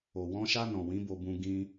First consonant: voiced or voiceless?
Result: voiced